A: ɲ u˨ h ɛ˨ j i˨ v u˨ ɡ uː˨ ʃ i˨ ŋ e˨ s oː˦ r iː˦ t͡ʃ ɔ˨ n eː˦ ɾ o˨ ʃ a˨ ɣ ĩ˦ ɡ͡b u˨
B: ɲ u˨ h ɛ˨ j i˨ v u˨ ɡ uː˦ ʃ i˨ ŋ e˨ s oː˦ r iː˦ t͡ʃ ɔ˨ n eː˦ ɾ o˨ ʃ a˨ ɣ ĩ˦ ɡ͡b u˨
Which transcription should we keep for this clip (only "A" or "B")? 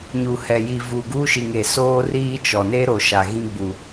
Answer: B